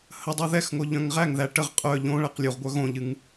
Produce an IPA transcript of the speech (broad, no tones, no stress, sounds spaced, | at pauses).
h ə dˤ u ð ɛ x ŋ o ʎ œ̃ ŋ ʁ æ ŋ ð æ ʈ ə ʁ qʼ œ ʎ õ ɭ æ q lʲ u ʁ ɡʷ œ ɣ õ ʎ ɨ ŋ